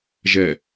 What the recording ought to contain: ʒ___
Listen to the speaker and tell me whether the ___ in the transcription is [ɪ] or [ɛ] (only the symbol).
ɛ